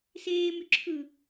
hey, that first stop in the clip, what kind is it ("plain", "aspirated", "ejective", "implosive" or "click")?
click